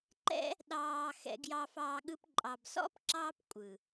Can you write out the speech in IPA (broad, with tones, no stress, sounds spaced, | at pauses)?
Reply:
ǃ ɛ̰˦ | ɗ ɑː˧ x ɛ̰˧ ɡ j ɑ˧ f ɑː˧ ɠ ɯ˧ p ǃʼ ɑ˨ b s ɔ̰˦ p ǁ ɑː˧ p kʷʼ ɯ˨